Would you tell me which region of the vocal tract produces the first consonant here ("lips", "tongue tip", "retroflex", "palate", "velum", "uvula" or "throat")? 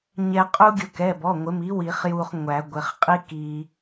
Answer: palate